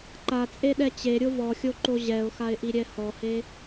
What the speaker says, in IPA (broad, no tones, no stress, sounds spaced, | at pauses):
ǃ a t͡sʼ e ɗ ɛ t͡ɕ e ɾʲ o v ɔ xʲ o ǃ o ʑ ɛ ʊ̯ x a ɪ̯ ʔ i ɾʲ ɛ h ɔ h e